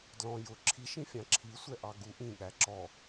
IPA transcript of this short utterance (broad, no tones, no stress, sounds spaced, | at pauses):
d l ɔ̃ j ʊ ǁʰ i ʃ ĩ fʲ ɑ̃ ǁʰ i sʷ ɛ ʔ ɑ ɡ u ʔ ĩ ɠ æ ǁ ɔ